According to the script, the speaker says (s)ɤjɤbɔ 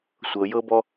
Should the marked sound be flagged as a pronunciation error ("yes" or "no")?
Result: yes